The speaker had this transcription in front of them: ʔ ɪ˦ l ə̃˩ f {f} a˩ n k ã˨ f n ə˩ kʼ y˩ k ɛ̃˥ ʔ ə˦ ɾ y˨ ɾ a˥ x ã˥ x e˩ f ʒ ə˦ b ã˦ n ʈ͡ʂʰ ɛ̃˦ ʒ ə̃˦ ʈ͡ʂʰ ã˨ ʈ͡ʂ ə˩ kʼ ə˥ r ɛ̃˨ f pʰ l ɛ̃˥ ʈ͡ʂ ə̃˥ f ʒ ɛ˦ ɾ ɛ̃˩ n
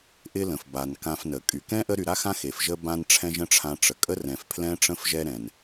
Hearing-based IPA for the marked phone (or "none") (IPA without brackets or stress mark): b